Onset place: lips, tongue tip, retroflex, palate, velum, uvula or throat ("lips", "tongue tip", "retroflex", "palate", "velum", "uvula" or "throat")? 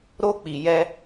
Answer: tongue tip